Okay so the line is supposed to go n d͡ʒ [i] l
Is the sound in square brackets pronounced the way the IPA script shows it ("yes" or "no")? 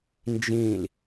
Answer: no